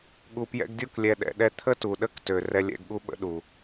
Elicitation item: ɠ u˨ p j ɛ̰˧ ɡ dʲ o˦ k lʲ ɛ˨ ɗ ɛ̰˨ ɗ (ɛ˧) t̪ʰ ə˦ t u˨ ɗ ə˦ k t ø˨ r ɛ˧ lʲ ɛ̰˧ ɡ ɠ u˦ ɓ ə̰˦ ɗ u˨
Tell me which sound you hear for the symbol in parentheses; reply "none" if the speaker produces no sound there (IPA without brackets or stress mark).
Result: ɛ˧